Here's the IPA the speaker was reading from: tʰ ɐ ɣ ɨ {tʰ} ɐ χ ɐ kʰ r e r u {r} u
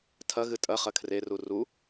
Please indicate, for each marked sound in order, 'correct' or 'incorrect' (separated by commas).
incorrect, correct